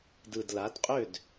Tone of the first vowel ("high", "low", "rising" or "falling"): low